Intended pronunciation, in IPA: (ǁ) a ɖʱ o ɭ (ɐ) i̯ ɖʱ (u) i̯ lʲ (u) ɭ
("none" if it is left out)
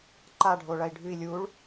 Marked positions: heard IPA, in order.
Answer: ǃ, ɐ, ʉ, u

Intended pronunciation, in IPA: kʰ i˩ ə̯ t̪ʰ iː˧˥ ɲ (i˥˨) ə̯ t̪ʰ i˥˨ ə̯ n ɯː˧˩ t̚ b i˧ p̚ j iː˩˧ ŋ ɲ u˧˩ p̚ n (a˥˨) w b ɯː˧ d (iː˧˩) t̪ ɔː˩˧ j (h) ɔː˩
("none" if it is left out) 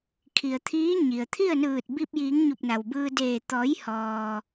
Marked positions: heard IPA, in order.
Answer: i˩, a˩, eː˧˩, h

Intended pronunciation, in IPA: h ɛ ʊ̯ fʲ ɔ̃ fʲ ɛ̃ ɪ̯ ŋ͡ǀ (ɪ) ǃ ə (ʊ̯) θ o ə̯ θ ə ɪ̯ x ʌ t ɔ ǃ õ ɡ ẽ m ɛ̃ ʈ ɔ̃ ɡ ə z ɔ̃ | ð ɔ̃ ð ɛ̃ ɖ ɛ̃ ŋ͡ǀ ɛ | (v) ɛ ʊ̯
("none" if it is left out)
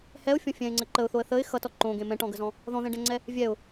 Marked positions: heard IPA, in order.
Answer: ə, ʊ̯, vʲ

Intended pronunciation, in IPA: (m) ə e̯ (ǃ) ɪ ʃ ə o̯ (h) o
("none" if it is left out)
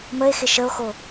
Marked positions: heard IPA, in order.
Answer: m, x, x

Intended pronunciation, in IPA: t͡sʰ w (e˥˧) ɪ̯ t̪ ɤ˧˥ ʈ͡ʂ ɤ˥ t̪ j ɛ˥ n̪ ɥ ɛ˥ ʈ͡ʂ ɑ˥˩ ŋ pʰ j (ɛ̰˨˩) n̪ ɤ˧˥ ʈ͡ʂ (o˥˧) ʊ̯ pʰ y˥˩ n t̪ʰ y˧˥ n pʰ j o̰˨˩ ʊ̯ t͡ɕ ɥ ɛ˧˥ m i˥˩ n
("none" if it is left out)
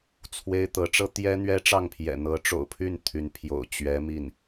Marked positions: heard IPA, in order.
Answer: e˥, ɛ̰˨˩, o̰˨˩

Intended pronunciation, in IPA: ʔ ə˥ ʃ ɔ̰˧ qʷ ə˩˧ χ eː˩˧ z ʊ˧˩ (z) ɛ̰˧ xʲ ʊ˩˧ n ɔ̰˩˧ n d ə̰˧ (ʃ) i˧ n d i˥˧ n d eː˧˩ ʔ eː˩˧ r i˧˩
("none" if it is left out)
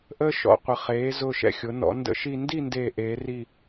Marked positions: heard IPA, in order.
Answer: ʃ, ʃ

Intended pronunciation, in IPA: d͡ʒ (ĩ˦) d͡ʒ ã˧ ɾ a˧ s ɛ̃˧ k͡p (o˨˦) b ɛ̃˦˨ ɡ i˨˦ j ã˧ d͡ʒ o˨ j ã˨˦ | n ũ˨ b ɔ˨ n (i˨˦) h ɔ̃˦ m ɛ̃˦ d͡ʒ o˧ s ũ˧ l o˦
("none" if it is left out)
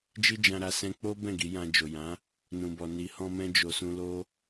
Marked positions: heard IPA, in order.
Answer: i˦, o˦, i˨˦

